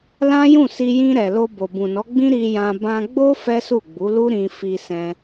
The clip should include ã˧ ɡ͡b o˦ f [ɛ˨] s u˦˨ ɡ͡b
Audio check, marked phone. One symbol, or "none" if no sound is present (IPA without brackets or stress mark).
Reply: ɛ˦